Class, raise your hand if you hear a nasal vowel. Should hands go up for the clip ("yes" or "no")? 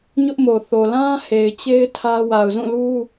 yes